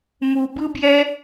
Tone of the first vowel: low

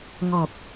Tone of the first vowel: low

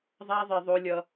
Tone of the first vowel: high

